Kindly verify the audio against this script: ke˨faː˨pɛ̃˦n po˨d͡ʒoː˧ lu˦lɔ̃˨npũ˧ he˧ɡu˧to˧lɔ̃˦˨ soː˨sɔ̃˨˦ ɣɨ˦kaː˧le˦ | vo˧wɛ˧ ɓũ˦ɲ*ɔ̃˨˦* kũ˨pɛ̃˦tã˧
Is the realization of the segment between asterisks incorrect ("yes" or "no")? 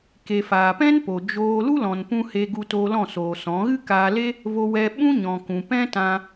yes